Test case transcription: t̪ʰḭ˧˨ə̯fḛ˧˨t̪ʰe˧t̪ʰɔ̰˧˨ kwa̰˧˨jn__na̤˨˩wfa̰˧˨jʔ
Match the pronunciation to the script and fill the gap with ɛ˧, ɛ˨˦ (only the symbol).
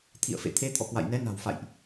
ɛ˨˦